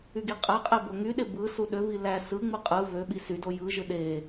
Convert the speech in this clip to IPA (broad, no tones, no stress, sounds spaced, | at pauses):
y ɡ i qʼ æ qʼ e b o ŋ y ɗ e b ɯ s u ɗ ø v i l æ s ɯ ŋ͡m ɯ qʼ ɯ v ø ɓ i s y d o j ɯ ʒ ɯ ɗ e